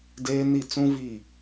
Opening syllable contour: high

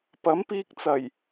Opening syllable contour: rising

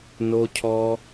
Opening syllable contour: high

